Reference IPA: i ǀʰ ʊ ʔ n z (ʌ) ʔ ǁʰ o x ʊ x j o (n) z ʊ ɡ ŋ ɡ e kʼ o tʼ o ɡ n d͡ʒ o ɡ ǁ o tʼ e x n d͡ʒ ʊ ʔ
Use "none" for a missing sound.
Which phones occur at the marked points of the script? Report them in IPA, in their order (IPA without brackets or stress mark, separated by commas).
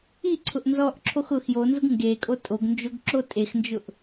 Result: ɔ, n